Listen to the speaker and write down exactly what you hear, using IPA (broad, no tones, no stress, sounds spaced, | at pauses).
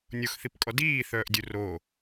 nʲ o x θ i p kʼ ɔ d iː θ œː ʔ dʲ u r o